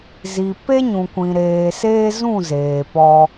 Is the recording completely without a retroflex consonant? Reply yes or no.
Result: yes